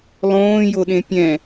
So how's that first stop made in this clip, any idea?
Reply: implosive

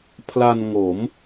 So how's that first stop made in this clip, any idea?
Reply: aspirated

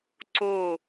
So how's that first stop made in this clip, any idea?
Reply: click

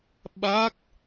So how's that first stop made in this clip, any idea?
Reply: implosive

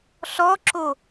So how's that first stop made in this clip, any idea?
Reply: click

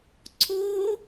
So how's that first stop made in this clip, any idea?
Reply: click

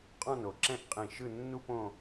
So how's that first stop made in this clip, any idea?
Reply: ejective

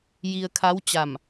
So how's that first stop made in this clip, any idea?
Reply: aspirated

